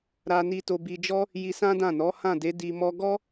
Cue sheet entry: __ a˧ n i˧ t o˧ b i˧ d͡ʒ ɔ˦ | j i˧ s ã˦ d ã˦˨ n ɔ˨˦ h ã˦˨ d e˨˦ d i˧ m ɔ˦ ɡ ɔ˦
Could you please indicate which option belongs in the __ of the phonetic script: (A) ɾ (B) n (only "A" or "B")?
A